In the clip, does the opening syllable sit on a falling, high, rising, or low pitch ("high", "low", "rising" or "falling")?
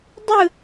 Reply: falling